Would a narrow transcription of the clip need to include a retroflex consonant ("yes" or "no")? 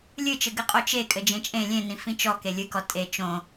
no